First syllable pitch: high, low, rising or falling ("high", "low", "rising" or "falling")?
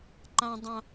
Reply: high